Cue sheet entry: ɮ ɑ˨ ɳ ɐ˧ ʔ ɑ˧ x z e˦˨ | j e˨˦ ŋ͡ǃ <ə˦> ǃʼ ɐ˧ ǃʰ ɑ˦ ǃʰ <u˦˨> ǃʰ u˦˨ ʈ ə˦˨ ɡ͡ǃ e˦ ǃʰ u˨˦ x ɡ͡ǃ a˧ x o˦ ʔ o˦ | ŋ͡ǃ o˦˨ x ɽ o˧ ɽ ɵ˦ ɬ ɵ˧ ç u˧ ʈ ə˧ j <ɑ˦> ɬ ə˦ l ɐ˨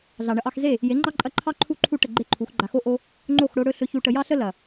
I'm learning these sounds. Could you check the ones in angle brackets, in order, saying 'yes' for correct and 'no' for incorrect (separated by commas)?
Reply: no, yes, yes